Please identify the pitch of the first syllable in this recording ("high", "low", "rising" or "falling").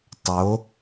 rising